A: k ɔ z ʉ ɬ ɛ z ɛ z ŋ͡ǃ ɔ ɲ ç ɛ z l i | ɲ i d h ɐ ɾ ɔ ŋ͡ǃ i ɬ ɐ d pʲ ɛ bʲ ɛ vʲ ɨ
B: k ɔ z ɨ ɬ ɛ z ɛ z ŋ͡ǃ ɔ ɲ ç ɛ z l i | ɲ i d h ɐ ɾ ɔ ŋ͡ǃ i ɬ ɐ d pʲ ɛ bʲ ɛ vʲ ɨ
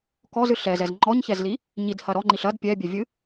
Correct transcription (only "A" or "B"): B